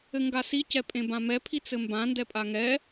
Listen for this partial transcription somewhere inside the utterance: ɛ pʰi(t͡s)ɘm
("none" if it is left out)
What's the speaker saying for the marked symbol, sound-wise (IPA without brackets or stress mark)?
t͡s